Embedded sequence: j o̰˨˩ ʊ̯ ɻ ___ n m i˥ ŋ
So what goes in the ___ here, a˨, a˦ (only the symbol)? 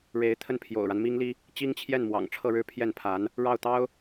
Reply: a˦